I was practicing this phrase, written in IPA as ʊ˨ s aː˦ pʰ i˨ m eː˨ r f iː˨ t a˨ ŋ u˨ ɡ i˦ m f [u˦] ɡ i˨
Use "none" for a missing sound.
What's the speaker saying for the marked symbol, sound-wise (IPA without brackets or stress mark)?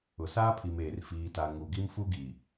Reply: u˦